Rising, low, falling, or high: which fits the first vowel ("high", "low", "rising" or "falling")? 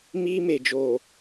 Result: high